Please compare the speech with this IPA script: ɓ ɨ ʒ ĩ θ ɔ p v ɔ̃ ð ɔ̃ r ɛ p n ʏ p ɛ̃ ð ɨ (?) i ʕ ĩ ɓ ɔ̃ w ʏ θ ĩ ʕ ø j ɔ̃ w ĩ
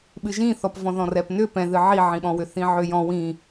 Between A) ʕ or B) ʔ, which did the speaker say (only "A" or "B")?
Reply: A